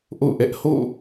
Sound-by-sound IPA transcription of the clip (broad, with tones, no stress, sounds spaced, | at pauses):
ʔ o̰˦˨ ʊ̯ ʔ ɛ˦ ʔ h o̰˦˨